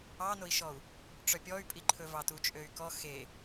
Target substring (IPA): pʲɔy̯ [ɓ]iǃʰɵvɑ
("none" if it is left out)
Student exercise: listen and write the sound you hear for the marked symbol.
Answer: pʼ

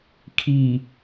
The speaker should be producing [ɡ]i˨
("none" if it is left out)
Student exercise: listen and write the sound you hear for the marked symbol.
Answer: kʰ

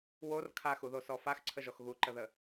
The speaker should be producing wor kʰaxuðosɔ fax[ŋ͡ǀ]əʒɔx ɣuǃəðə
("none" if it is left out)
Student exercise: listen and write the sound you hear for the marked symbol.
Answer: ǀʰ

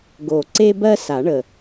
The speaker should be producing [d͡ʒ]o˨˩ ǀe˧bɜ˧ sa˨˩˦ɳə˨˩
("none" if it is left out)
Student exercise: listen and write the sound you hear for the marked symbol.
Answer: ɡ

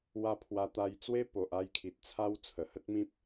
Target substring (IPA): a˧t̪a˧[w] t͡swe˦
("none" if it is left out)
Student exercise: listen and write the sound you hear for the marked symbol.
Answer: j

